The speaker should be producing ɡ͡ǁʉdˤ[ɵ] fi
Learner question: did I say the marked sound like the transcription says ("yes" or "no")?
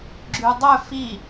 yes